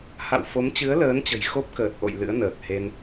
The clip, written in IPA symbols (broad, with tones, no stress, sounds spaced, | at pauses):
h a̰˧˨ w f o˨˦ m t͡ɕ ɨ˨˦ ə̯ l əː˨˦ n t͡ɕ ə̤˨˩ j x o˦˥ p̚ k əː˨˩ t̚ ʔ o̰˧˨ j l ɨ̰˧˥ ə̯ n əː˨˩ k̚ h e˧ n